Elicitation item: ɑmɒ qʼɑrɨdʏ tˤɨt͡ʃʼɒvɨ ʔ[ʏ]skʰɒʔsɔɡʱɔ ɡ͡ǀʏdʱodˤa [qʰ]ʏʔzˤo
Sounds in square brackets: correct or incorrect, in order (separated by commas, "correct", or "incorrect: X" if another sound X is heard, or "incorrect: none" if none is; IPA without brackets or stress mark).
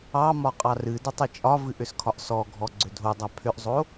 correct, incorrect: pʰ